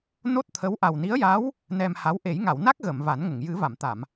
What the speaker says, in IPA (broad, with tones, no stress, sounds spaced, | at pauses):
n o˦˥ t̚ t̪ʰ ə˧˥ w ʔ a˨˩ w n i˧˥ ə̯ j a˧˥ w | n ɛ˧ m h a˧˥ w ʔ e˨˩˦ j ŋ a˨˩˨ w n a˦˥ k̚ ɣ ə˨˩˨ m v a˨˩˦ n ŋ ə˨˩˨ ŋ j ɨ˨˩˦ v a˨˩˨ m t̪ a˨˩˨ m